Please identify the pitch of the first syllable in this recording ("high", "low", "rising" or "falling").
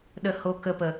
high